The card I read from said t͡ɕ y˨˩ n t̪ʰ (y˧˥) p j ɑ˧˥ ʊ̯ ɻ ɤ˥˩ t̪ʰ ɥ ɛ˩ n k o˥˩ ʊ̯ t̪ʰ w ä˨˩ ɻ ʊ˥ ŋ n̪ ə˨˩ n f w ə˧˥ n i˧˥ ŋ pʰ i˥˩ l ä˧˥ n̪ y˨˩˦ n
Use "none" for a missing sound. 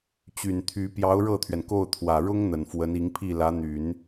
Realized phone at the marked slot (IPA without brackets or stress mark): y˧˥